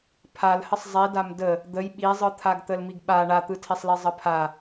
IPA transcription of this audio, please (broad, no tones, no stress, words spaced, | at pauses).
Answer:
pʰalhəsˤ zˤidam də | d̪əj ɓizˤɯt̪ʰaɡt̪əl miɡɓa ɳat̪ɯtʰisˤli zˤəpʰa